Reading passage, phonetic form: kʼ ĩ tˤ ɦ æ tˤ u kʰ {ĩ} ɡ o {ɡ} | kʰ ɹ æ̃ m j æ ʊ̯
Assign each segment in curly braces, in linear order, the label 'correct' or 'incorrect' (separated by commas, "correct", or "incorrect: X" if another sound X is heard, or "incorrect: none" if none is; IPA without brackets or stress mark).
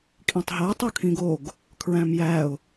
correct, correct